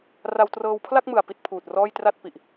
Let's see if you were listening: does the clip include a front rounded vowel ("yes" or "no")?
no